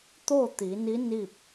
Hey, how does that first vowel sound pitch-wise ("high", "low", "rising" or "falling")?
falling